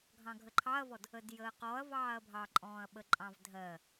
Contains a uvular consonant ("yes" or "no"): yes